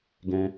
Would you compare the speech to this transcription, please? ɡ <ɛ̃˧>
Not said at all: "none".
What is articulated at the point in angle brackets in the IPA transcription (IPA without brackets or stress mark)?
ɛ̃˧